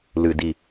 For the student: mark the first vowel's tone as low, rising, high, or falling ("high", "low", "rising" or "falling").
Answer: low